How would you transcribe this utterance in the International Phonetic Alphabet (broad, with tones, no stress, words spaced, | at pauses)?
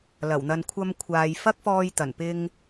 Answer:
lɐ˨˩wn̪ɐ˧n kʷʰɐ˧mkʷʰaː˨jfɐ˥k̚fɔː˧j t̪ɐ˨˩npɪ˧ŋ